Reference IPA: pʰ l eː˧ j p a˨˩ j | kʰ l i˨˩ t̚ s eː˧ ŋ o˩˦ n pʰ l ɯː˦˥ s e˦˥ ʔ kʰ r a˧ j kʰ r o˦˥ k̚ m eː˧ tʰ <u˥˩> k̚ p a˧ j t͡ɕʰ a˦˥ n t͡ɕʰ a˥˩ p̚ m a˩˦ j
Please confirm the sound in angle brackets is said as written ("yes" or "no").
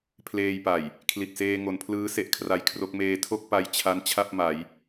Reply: no